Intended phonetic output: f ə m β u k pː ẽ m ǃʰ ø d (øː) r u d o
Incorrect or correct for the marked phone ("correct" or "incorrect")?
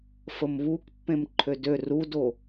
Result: incorrect